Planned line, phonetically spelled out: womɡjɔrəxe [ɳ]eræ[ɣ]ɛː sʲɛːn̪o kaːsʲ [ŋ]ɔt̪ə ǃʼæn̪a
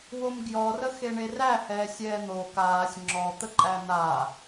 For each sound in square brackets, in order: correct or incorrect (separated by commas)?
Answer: correct, incorrect, incorrect